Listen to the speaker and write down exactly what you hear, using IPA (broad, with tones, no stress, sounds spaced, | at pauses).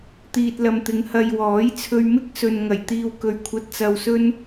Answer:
t̪ iː˨ t̚ l ɐ˨ m t̪ ɪ˨˧ ŋ h ɐ˨ j w ɔː˨˥ j t͡sʰ ɵ˧ ɥ m ɪ˥ k̚ s ɵ˨ n ŋ ɐ˨˩ j t̪ iː˧ w k ɵ˨ ɥ kʷʰ ɐ˧ t̚ t͡s ɐ˧ w s ɵ˥ n